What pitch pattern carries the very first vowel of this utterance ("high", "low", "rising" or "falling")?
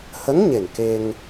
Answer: rising